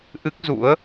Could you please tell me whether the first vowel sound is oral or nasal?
oral